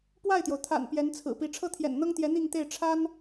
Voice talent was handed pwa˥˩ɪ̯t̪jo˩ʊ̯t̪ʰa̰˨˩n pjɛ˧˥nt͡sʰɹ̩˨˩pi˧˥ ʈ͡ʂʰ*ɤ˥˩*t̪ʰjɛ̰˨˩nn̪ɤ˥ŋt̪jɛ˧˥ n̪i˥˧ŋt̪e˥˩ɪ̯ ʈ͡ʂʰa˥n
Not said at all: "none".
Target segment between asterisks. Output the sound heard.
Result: ɤ˥˩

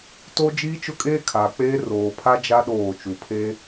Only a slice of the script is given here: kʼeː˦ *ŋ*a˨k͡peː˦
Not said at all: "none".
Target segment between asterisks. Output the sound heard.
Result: kʰ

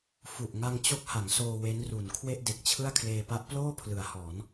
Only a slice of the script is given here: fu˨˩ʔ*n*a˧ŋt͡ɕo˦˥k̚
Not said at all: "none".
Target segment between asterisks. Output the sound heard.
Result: ŋ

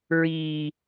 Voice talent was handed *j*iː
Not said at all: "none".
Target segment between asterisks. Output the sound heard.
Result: ɹ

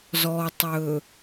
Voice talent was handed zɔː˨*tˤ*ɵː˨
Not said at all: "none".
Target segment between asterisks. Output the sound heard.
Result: tˤ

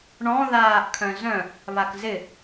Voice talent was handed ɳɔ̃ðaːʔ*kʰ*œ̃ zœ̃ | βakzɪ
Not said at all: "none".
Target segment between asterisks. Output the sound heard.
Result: kʰ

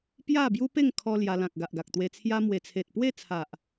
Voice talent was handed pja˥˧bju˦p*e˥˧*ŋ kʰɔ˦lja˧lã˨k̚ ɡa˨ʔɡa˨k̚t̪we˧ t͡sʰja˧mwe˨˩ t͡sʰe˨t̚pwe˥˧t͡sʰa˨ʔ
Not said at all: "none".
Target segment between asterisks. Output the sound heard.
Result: e˥˧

